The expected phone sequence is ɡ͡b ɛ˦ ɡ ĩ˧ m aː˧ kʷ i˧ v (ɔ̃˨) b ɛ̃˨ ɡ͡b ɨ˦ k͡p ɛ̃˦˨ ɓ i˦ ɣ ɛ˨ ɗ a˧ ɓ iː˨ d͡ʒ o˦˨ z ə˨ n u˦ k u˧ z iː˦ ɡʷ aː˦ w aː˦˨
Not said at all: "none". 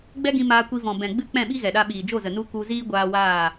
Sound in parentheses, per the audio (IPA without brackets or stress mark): ɔ̃˨